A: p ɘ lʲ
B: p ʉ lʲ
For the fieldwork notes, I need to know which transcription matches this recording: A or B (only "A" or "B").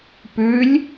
B